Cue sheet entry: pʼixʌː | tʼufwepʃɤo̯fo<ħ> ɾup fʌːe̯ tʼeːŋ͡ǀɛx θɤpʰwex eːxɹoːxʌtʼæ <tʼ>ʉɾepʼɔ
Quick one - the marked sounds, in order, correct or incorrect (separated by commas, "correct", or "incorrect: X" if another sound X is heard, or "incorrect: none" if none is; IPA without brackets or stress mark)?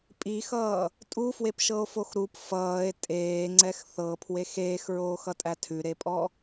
incorrect: x, incorrect: tʰ